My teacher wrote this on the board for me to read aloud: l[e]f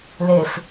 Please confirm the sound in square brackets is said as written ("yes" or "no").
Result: yes